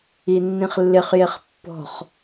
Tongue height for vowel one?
high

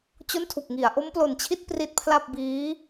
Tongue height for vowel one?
mid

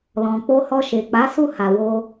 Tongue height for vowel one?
mid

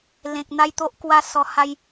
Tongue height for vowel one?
mid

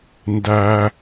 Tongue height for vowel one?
low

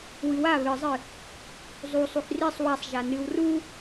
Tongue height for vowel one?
high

